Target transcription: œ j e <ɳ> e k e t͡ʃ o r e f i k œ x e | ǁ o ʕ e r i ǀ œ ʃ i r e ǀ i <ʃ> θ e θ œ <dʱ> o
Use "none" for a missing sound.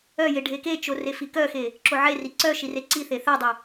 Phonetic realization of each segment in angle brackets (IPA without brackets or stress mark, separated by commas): ɖʱ, none, dˤ